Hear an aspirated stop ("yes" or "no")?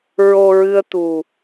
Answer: no